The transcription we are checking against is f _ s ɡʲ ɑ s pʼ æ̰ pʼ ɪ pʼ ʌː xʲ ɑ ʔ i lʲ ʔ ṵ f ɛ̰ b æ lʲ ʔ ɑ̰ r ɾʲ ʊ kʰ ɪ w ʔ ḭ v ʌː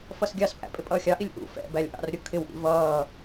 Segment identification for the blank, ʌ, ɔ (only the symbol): ʌ